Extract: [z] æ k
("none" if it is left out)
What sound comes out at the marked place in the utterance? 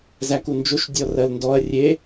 z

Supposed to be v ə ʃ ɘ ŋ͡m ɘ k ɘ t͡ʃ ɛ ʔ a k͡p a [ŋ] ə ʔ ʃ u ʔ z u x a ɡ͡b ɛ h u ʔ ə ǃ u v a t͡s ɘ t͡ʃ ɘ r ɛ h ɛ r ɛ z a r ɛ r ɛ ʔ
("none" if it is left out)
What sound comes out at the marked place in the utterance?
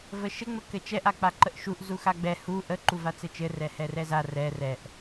ǃ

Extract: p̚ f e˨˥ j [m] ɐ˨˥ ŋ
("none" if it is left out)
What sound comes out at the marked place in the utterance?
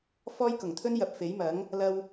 m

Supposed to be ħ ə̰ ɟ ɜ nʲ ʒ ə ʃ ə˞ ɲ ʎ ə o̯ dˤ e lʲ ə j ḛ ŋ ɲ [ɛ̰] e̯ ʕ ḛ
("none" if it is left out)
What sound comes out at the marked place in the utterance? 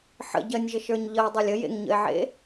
ə̰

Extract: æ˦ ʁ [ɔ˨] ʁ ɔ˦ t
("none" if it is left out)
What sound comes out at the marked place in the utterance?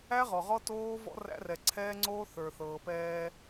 ɔ˨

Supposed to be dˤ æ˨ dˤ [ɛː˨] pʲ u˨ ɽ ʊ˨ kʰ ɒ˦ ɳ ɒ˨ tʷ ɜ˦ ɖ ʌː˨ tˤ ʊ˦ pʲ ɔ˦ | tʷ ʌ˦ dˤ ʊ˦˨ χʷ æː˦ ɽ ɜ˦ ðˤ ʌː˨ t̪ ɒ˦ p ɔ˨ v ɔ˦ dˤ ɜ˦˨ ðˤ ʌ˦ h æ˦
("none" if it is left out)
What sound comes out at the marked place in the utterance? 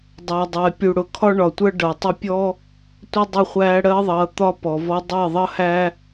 ɛː˨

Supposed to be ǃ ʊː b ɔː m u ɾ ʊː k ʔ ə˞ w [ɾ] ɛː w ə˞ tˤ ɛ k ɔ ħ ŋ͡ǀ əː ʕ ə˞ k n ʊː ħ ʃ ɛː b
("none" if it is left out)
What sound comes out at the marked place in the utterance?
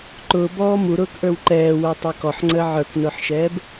ǃ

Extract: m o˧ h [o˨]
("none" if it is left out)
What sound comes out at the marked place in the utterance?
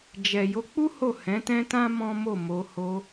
o˧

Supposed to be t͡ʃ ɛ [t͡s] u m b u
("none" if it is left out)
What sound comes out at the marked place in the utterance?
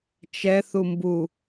θ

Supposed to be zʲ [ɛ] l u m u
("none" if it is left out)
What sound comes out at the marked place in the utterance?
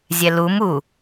ɛ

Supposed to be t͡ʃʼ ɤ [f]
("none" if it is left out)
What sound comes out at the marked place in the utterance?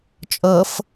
f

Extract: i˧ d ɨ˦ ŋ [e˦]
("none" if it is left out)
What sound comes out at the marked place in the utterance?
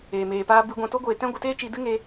e˦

